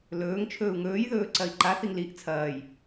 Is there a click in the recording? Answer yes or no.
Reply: yes